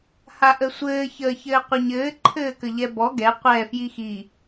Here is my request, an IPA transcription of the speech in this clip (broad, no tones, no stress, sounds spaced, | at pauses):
h a ʔ ə sʷ ɘː ç əː ç ɘː qʷ ɘ ɲ ɘː ǃʰ ɘː k ə ʎ ɛ b ɔ ɡ ɛ qʷ ɛ f j i x i